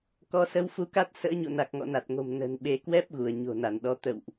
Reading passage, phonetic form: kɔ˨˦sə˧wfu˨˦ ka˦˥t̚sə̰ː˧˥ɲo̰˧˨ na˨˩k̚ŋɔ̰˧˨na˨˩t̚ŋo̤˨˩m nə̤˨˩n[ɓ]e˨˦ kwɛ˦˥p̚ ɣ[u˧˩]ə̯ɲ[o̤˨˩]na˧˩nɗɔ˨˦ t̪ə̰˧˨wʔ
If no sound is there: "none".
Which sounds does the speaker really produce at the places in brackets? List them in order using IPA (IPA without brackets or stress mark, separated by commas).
ɓ, u˧˩, o̤˨˩